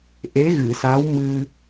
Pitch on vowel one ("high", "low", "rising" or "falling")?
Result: rising